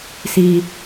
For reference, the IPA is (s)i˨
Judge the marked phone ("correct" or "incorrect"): correct